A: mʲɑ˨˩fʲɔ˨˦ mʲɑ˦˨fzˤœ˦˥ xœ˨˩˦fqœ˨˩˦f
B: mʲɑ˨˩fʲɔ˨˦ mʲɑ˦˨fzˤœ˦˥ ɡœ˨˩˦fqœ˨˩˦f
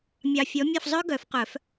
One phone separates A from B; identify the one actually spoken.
B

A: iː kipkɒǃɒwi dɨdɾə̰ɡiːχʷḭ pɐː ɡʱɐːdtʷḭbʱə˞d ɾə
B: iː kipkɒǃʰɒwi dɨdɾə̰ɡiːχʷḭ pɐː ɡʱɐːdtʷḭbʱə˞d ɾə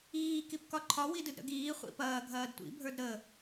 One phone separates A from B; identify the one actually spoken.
B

